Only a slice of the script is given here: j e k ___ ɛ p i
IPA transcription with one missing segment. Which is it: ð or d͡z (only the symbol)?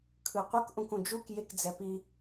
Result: d͡z